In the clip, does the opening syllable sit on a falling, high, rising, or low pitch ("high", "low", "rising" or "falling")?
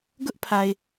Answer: high